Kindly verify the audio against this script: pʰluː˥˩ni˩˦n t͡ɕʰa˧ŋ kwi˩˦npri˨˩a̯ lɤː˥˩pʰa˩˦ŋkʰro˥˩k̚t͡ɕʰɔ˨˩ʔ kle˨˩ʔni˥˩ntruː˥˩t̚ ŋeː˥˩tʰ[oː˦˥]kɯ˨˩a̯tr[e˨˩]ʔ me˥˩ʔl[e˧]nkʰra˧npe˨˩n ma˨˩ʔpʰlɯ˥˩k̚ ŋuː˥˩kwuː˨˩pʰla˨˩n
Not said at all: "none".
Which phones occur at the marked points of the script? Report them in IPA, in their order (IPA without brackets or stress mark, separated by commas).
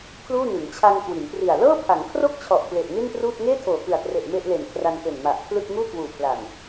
oː˨˩, e˨˩, e˨˩